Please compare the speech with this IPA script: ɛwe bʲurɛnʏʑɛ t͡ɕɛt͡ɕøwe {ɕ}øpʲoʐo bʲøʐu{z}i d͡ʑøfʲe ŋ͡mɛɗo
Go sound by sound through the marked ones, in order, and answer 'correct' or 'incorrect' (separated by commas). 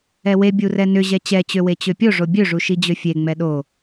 incorrect, incorrect